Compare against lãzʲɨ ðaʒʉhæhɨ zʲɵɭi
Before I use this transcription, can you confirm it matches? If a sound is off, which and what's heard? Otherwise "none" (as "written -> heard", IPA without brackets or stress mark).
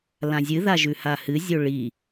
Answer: æ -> a